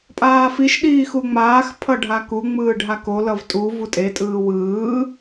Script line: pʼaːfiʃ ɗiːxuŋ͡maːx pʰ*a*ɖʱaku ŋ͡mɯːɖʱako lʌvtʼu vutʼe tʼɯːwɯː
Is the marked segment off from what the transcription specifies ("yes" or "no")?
yes